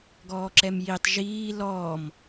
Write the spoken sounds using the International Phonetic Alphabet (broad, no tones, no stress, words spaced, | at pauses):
ɡɔːǁɛmjitˤ ʒiː lɔːm